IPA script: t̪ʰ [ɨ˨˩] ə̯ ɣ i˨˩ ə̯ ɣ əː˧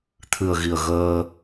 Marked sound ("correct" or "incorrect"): correct